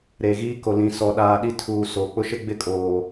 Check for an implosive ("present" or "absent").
present